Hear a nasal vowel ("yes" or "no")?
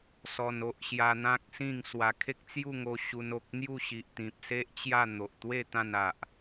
yes